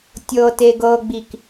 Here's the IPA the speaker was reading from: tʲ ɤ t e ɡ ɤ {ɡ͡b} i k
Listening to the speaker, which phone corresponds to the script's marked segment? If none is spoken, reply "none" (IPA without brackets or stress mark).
ɡ͡b